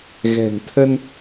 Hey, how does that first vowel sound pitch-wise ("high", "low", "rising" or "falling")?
low